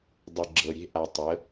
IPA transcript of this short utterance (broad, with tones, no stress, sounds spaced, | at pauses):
dˤ ʏ˨ ɡ͡ǁ ɤ˨ ɾʲ e̤˦ ʔ a˨ tˤ ə˨˦